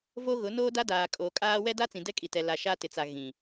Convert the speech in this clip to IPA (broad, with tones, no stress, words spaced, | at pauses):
vo˦ɣʊ˨˦ noː˦da˦ daː˨kʼoː˨kʼaː˦ wɛ˦da˦ t͡sĩ˨dɛ˦kʼi˨tɛ˨ la˨ʃa˦ tɪ˨˦t͡sa˨ ɣĩ˨